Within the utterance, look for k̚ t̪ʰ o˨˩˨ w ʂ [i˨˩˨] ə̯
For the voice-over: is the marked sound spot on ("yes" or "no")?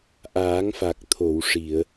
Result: yes